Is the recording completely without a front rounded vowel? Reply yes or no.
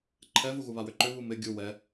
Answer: no